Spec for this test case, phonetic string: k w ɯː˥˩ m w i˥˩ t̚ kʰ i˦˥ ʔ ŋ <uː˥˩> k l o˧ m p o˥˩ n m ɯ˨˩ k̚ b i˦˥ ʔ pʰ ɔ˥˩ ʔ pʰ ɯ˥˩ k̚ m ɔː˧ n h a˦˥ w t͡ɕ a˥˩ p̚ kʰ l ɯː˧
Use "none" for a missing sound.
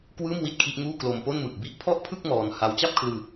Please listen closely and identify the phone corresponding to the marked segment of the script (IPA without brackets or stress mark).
uː˥˩